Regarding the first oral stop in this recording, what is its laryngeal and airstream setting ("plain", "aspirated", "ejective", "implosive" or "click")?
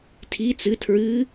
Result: aspirated